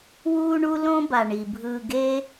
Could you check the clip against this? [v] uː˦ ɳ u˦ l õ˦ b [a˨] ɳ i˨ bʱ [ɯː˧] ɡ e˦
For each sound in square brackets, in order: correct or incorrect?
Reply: incorrect: w, correct, correct

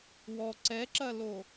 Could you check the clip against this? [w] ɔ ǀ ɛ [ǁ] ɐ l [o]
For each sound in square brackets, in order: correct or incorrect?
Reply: correct, correct, correct

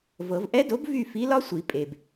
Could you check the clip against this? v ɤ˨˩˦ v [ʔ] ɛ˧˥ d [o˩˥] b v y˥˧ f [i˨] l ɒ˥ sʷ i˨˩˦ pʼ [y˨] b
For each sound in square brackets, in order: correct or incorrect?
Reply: correct, correct, incorrect: i˧˥, incorrect: e˨

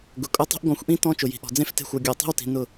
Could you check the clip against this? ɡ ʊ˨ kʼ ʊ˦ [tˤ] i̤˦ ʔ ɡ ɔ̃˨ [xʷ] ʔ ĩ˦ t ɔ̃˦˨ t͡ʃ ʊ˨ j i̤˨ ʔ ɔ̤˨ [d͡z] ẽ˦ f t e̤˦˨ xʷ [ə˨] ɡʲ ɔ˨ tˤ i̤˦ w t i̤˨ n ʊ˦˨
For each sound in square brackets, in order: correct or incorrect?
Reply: correct, correct, correct, incorrect: ɔ˨

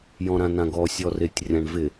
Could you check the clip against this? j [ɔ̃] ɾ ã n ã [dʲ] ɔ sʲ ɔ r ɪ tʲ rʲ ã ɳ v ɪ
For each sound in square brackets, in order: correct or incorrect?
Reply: correct, incorrect: ɡ

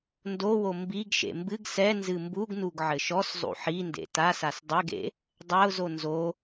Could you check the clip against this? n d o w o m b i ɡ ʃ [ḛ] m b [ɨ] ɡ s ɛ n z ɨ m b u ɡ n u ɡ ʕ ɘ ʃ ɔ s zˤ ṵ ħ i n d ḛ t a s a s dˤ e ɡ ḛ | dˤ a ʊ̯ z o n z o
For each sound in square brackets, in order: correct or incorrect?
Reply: correct, correct

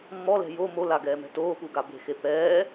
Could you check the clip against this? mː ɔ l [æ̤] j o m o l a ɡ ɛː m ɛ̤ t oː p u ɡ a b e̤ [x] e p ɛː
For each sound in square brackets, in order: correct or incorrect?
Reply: incorrect: ɛ̤, correct

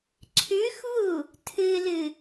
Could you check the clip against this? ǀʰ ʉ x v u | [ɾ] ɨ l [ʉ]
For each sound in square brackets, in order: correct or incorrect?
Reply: incorrect: tʰ, incorrect: ɨ

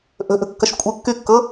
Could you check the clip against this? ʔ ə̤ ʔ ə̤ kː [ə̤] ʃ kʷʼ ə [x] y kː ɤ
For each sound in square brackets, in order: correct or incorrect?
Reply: incorrect: ə, incorrect: kː

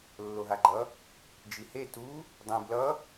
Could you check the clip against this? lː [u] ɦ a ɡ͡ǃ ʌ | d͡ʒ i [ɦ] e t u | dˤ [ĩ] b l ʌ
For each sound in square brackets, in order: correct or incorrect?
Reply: incorrect: o, incorrect: h, correct

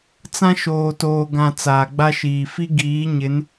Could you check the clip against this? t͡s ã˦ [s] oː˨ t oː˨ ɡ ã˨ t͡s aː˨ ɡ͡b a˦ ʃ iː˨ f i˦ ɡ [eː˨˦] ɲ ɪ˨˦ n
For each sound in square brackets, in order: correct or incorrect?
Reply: incorrect: ʃ, incorrect: iː˨˦

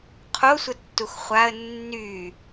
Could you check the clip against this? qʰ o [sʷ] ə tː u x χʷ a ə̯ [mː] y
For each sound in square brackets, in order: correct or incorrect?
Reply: correct, incorrect: nː

